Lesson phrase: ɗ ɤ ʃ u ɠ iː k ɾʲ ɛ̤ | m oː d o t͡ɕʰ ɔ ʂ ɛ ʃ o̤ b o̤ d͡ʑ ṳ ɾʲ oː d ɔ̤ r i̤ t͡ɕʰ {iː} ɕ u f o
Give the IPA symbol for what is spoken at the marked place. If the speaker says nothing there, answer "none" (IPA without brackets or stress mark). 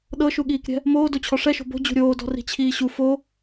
iː